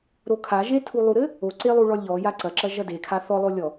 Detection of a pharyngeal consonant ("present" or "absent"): absent